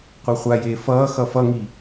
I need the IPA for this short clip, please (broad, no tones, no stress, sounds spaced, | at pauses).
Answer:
qʷ a χʷ a j eː f ʌː x ʌ f ʌ ŋ i